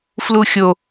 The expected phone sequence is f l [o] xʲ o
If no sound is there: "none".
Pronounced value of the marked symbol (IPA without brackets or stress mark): u